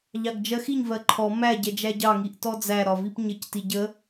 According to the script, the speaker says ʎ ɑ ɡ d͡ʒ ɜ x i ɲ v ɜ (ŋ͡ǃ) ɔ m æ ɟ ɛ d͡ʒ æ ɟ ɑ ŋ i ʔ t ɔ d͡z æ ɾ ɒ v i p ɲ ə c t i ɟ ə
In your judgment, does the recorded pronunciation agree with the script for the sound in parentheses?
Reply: no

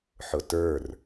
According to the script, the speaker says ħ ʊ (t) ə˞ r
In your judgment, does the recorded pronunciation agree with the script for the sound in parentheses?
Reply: yes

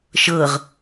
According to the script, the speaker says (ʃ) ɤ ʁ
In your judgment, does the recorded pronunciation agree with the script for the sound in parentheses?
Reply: yes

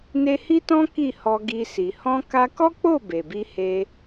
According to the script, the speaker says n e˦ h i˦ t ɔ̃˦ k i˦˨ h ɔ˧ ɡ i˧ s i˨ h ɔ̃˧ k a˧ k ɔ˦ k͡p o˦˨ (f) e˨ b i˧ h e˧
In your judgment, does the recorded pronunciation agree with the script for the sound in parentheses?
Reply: no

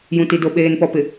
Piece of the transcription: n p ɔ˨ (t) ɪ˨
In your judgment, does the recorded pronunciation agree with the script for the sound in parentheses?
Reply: no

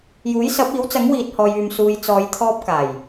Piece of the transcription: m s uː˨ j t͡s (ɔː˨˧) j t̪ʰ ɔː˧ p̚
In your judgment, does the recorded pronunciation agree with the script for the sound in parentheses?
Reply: yes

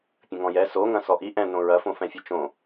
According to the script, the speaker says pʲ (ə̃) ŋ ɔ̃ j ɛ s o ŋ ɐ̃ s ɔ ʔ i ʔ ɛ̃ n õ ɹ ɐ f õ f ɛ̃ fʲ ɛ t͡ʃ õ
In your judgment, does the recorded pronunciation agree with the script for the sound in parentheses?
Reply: yes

